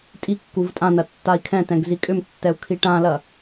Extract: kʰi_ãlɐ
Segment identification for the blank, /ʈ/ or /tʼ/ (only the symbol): ʈ